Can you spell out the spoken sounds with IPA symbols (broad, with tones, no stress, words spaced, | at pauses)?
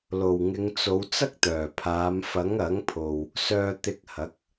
lo˨˩wŋɪ˨˧ŋt͡so˨˧w t͡sɐ˥k̚t̪œː˨˩pʰaː˨˧m fɐ˨˥ŋɐ˨˥ŋ pʰo˨w | sœː˧t̪ɪ˧k̚ hɐ˨˥k̚